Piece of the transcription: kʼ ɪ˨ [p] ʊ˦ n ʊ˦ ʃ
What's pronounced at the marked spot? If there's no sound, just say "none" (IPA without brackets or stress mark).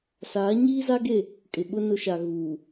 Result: ɓ